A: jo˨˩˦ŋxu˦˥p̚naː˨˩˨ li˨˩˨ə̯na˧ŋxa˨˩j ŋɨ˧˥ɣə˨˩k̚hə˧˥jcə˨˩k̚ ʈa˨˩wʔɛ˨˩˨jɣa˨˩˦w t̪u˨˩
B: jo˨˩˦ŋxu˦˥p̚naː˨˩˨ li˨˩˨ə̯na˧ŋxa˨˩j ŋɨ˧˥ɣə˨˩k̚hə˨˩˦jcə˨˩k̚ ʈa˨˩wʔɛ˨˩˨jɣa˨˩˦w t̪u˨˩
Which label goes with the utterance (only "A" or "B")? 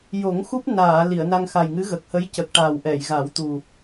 A